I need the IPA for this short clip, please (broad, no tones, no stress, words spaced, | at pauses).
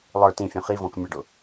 lˠə˞ tĩfʲũ χivɔ̃k mʲɛɖʊ